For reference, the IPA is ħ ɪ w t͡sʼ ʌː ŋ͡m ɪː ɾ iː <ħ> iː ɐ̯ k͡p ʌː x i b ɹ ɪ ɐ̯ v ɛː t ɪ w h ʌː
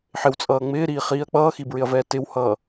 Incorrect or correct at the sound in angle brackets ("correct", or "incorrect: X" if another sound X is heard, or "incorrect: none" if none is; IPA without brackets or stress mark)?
incorrect: χ